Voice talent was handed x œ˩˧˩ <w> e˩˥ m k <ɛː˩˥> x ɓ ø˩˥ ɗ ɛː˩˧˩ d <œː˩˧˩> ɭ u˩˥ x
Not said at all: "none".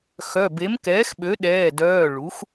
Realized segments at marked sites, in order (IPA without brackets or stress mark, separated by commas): b, ɛː˩˥, œː˩˧˩